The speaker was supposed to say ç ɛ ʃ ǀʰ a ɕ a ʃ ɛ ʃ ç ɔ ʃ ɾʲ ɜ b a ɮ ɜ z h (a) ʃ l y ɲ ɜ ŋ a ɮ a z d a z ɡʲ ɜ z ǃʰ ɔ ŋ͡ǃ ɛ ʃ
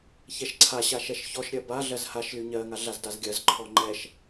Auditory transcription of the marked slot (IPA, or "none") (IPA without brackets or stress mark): a